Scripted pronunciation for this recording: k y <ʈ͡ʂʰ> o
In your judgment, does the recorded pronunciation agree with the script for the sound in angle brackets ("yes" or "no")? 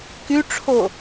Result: yes